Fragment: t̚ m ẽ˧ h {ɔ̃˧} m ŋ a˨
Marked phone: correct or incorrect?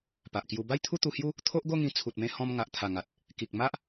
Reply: correct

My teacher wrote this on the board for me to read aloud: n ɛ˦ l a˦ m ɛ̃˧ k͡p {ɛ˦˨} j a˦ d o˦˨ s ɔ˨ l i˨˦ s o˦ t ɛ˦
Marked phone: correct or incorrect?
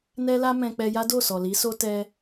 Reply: incorrect: ɛ˧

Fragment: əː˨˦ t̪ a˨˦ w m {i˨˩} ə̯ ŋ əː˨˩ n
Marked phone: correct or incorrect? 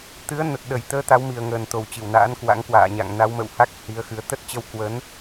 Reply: correct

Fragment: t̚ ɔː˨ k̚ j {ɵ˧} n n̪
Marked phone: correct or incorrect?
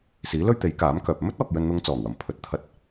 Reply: correct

